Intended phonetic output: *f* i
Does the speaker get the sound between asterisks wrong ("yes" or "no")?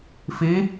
no